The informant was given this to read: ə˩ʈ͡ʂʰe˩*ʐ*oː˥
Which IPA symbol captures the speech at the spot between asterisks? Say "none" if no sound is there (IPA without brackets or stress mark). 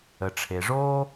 ʐ